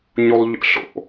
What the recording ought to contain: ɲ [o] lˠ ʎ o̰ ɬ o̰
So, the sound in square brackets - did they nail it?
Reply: no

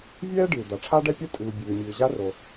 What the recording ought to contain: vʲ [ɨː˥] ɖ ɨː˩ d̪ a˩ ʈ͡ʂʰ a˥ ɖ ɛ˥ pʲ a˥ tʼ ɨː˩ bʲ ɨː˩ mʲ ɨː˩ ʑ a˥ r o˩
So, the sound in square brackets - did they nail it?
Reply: no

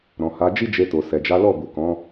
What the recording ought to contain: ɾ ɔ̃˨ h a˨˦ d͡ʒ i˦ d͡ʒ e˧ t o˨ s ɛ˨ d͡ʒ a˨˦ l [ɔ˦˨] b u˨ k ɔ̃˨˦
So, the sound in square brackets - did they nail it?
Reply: yes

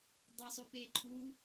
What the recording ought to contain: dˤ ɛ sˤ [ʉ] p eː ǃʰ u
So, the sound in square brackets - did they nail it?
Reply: yes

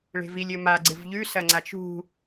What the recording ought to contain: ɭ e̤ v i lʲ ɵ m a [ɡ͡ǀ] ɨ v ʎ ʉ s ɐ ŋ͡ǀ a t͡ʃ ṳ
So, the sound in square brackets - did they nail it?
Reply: yes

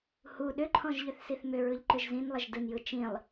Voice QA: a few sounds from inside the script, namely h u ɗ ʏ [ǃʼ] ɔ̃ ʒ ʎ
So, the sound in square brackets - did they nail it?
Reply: no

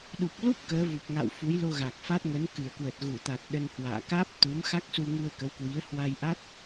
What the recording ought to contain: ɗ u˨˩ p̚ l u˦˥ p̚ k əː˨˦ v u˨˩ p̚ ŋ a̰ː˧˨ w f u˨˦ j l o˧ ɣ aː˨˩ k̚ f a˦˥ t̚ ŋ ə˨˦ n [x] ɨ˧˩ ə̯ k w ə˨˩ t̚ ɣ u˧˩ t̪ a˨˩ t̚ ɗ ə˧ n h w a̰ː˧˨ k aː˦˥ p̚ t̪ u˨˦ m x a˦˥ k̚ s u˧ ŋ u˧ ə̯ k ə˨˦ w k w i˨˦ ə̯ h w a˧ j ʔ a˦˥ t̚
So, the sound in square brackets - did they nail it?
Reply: no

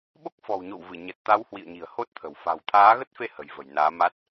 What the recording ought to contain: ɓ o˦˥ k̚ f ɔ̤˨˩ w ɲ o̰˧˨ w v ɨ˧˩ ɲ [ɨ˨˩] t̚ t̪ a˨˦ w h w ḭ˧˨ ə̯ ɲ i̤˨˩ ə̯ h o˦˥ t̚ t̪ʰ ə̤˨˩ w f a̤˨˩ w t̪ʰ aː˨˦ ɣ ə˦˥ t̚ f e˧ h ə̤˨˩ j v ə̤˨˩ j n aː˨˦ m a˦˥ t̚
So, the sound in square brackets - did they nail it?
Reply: no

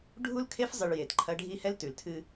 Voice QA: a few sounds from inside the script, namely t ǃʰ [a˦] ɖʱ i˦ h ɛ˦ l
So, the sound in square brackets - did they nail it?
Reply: no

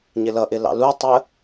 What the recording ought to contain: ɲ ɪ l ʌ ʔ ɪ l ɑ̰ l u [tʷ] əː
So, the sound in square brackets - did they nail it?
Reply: no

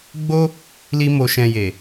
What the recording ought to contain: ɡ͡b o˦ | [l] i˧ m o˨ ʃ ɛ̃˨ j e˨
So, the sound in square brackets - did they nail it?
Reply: yes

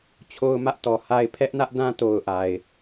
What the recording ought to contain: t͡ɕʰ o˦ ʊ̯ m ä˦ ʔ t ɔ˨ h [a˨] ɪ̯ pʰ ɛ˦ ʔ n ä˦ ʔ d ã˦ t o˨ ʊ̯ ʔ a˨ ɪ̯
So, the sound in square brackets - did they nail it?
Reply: no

